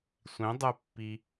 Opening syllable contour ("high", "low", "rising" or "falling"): rising